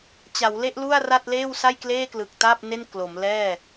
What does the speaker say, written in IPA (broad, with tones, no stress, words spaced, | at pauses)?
t͡ɕa˩˦wle˥˩ʔ lu˥˩a̯ra˥˩t̚ leː˥˩wsa˥˩j kleː˥˩klɯ˨˩k̚ta˥˩p̚ ne˥˩nklo˩˦mlɛː˥˩